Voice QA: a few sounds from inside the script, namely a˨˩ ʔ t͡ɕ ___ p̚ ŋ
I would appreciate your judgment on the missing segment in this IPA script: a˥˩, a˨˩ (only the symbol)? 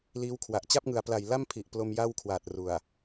a˥˩